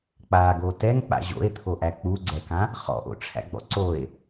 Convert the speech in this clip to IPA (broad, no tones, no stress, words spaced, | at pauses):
k͡paɡo tɛŋ k͡pa̰ʑo̰e̯t̪ʰoʔæ k͡puɡ͡ǀɛkã | χɔ̰ʔo̰ʈ͡ʂʰæ̰ ɡ͡bɔ̰ǀoe̯